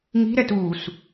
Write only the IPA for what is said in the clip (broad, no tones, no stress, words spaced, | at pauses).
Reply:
ŋi̤ɾɛt uːs